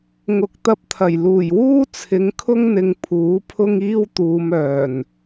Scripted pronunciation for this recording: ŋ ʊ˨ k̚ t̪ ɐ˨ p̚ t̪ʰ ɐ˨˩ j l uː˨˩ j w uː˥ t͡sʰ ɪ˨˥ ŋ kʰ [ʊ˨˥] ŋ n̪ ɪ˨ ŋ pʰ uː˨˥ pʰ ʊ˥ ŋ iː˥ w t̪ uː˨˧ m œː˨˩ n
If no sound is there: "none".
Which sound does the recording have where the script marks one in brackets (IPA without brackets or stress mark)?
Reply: ʊ˥